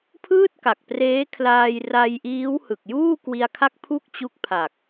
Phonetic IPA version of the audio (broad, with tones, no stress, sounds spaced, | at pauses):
pʰ ɯː˥˩ t̚ k a˨˩ k̚ p r eː˦˥ kʰ l aː˧ j r a˧ j ʔ iː˦˥ w h ɯ˨˩ k̚ j uː˥˩ k w i˧ a̯ kʰ a˥˩ k̚ pʰ u˥˩ k̚ t͡ɕ u˦˥ k̚ pʰ a˨˩ k̚